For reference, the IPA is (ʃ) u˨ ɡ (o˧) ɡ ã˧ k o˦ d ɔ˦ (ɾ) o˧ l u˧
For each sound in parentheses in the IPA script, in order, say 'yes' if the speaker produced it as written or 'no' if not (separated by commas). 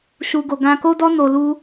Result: yes, no, no